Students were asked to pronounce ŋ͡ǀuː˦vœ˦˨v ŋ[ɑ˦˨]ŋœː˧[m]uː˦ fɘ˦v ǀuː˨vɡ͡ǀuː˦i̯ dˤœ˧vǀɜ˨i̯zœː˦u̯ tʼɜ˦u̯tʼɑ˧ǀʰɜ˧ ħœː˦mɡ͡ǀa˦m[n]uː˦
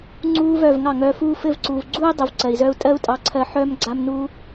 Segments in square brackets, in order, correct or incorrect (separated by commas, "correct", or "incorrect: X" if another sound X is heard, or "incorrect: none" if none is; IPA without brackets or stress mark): correct, incorrect: f, correct